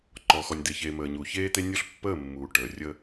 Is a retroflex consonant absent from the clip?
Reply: no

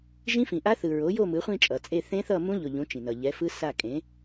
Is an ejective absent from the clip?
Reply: no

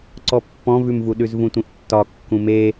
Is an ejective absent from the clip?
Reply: yes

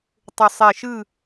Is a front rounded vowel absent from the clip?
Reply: no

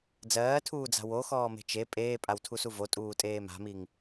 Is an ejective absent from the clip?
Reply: no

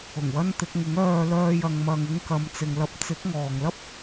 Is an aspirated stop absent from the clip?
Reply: yes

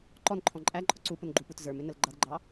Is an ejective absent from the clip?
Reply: no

